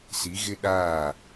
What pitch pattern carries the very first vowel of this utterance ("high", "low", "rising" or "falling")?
rising